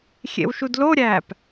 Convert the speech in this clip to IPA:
xʲ ḛ w ʃ u d l o ɾʲ æː p

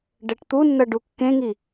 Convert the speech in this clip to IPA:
ɖ ɛ ʈ t̪ u nː ʌ ɖ u kː ẽ ŋ i

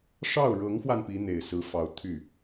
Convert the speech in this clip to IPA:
ʂ ɑ˥˩ ʊ̯ ɻ ɤ˧˥ ŋ x w a˧ n p i˧˥ n̪ e˨˩ ɪ̯ s ɹ̩˧˥ f ɑ˧˥ ʊ̯ t̪ʰ y˥˩

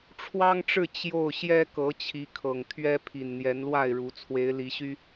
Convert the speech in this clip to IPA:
ʈ͡ʂʰ w ɑ˦ ŋ ʈ͡ʂ ɻ̩˥˨ t͡ɕ j o˥˨ ʊ̯ ɕ j ɛ˦ k ɤ˨˦ t͡ɕʰ i˨˦ kʰ ɤ˨˩ ŋ t̪ʰ ɥ ɛ˦ pʰ i˨˩ n n̪ j ɛ˨˦ n l w a˥˨ ɪ̯ ɻ u˨˦ t͡sʰ w e˨˦ ɪ̯ l i˨˦ ɕ y˦

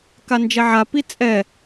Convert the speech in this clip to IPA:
k a n d͡ʒ ɛ ʕ a p i t͡sʼ ɛ

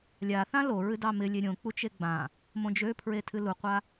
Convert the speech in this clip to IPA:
lʲ a θ ã l o ɹ ɨ d ɑ m ɪ lʲ e ɾʲ õ k͡p u t͡ʃ e ɡ͡b ã | m õ d͡ʒ ø pʰ ɹ e tʰ ɨ l u qʷ a

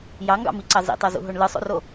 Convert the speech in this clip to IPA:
j ɑ ŋ ɡ ɑ̰ m i ǀ ɑ z ḭ tˤ o z ṵ ɦ o ɳ l ɯ sˤ o̰ r o

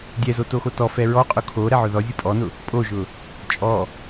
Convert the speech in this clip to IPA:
dʲ ɛ z o t o x o t ɔ f ɛ ɹ ɔ qʼ ʊ kʰ o ɾ ɛ ʕ ʊ ð ɔ zʲ ʊ pʼ ɔ n ʊ | pʼ o ʒ ʊ | t͡ʃʼ ɔ

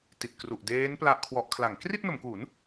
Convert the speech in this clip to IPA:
t i˨˩ t̚ k r u˨˩ ʔ d eː˦˥ n p l a˦˥ ʔ kʰ w ɔ˦˥ ʔ kʰ l a˩˦ ŋ k r i˥˩ t̚ n o˩˦ m k u˩˦ n

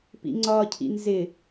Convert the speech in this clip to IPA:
p ḭ ŋ͡ǀ ɒ cʰ ḭ n z ɪ

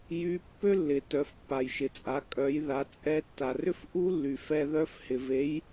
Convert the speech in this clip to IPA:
j y˧˥ pː ø˥ lː ɪ˩ t œ˩˧ f pː a˩ j ʃ ɪ˩ t͡sʼ a˩˧ kʼ œ˩˧ j ð a˩˧ t͡sʼ ɛ˧ tː a˩ r ʏ˥ f ʔ u˥ lː y˩ f ɛ˧ ð œ˧˥ f h ɪ˩ v e˩˧ j

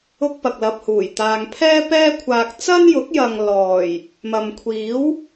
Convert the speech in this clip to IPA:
ʊ˥ k̚ p ɐ˨ k̚ l ɐ˧ p̚ h uː˨˩ j t̪ aː˨ ŋ pʰ ɛː˥ p ɛː˥ kʷʰ aː˧ k̚ t͡s ɐ˥ n j ʊ˨˥ k̚ j ɐ˨ ŋ l ɔː˨˩ j | m ɐ˨ m kʷʰ iː˨˥ w

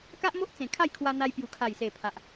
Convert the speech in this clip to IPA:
k a˦ ʔ m o˦ ʔ t͡s ẽ˨˩ kʰ a˥˧ j kʰ w a˧ n̪ a˧ j p j u˨˩ kʰ a˨˩ j s e˨˩ pʰ a˨ ʔ

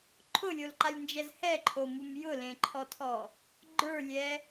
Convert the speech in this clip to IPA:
ǃʰ ʊ lʲ o l ǃ a lʲ n d͡ʒ ɛ z h ɛ ǃʰ o m u m j ʊ l ẽ ǃʰ ɔ tʰ ɔ | ɡ͡ǃ ə˞ lʲ ɛ

